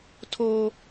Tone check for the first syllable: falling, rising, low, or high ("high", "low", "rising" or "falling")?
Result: high